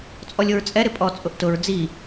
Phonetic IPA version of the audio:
t͡sʼ ɔ lʲ o ɹ t͡sʼ ɛ ɾ ɪ pʼ ɔ t͡sʼ ʊ ʔ t ʊ ɹ d͡z i

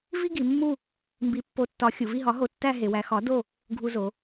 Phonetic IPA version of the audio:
v i˥ ɡ i˩˧ mː u˥˧ | m b i˨˥ pː o˨˥ tː ɒ˨˥ xʲ u˩˧ v i˥˧ ɦ ɒ˨˥ ɦ o˧ tː æ˥˧ ɦ e˩˧ w æ˩˧ x ɒ˨˥ d o˥˧ | ɡʱ u˧ z o˩˧

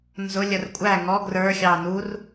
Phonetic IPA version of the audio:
n z ʊ lʲ ə r kʷʼ æ ŋ ɔ ɡ r ə˞ xʲ ɑ n u r

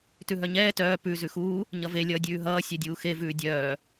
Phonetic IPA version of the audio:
t ʉ ɦ œ ɲ ɛː t œː p ʉ z ʉ x uː | ɲ ʌ v e lʲ ʌː dʲ ʉː ɦ ʌː sʲ ɛ dʲ uː x e v ʉː dʲ œː

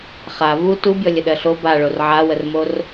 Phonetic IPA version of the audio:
χ a v u t u bʲ ɔ lʲ ə ɗ ɜ ɬ o b a ɭ o r ʕ a w ə r m o r

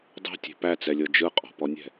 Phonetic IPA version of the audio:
dˤ ɛ̤ tʲ e̤ p æ t͡s ɛ lʲ ɤ d͡ʒ ɯ qʼ ɔ̤ p ɔ nʲ ɛ̤

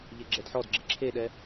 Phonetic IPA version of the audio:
ʎ e ɡ͡ǁ ɛ d ħ ɔ d ɡ͡ǁ e ǁʰ e ɗ ɛ

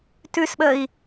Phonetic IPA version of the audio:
t ʉ s ɓ ə i̯

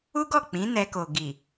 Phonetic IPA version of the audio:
u˦ ɡ ɔ˦˨ k͡p ĩ˨˦ n ɛ˧ k o˨ ɡ i˨

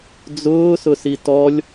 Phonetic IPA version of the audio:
d͡z ʊː s ʊ s i t ɔ lʲ

